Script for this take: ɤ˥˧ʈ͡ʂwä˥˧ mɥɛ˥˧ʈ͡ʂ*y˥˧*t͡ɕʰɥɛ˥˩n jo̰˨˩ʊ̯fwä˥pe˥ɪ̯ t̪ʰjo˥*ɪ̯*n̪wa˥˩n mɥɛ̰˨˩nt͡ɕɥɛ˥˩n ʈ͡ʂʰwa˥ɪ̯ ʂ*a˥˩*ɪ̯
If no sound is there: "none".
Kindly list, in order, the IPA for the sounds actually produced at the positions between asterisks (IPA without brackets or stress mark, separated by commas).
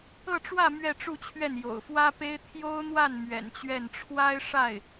u˥˧, ʊ̯, a˥˩